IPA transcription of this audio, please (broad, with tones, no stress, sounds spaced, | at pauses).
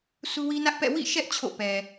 sʰ u˦ w i˦ n ä˦ ʔ p ɛ̰˦˨ w ḭ˦˨ ʃ ɛ˦ ʔ t͡ɕʰ o̰˦˨ p ɛ˨